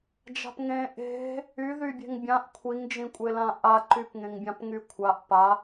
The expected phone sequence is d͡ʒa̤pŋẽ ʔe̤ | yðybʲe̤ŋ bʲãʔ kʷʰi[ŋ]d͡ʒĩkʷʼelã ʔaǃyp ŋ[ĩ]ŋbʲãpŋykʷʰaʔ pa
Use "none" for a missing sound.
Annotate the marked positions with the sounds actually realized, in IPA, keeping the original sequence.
ŋ, ẽ

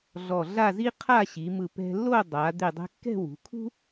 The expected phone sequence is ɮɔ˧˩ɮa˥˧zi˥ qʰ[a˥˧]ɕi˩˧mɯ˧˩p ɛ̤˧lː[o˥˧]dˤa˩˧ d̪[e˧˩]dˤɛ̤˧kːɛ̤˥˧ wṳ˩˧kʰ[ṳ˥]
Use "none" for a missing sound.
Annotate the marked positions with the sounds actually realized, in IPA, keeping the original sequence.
a˥˧, o˥˧, e˧˩, ṳ˥

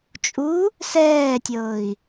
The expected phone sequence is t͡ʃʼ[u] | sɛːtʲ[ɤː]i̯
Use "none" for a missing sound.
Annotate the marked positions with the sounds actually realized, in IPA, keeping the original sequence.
u, ɤː

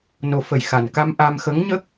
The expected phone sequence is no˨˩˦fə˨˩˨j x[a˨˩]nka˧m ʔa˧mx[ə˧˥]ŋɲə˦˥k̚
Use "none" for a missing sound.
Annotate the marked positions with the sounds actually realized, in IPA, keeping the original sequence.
a˨˩, ə˧˥

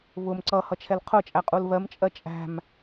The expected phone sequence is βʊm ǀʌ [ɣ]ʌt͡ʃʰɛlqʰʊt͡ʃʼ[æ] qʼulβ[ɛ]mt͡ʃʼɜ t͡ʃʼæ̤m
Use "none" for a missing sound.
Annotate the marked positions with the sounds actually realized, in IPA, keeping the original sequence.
h, æ, ɜ

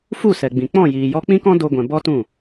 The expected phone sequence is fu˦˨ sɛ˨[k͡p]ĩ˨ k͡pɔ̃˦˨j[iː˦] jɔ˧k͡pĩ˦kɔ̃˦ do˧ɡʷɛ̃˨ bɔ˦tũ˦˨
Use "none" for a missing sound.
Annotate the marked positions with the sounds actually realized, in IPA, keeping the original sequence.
ɡ͡b, iː˨

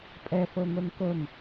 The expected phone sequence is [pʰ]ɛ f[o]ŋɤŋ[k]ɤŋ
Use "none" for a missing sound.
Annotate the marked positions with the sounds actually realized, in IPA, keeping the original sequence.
pʼ, ɤ, k

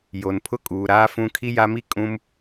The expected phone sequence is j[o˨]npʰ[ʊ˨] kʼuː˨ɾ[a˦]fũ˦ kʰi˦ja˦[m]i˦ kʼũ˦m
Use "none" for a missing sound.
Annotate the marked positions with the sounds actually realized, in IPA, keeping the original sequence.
o˨, ʊ˦, aː˦, m

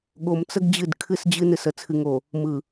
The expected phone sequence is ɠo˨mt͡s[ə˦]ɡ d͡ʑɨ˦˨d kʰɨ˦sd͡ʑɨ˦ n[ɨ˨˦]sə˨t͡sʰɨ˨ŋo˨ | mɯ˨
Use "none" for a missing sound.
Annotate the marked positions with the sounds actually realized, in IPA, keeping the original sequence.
ə˦, ɨ˨

